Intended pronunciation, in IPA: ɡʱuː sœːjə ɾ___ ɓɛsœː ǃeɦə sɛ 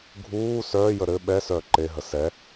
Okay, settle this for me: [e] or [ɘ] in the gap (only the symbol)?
ɘ